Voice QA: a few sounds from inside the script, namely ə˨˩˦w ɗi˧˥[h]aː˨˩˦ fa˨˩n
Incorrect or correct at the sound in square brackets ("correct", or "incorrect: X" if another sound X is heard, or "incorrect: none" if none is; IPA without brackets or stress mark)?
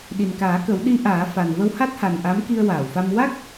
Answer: incorrect: ʔ